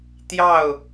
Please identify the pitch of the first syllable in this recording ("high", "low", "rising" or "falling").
falling